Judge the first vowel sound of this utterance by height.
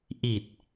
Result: high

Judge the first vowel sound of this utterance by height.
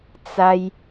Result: low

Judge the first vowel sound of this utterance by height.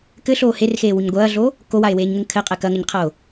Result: mid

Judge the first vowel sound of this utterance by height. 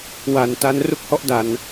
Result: low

